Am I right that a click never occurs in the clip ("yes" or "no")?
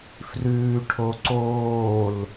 no